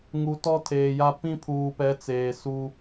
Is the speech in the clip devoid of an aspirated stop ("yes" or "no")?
no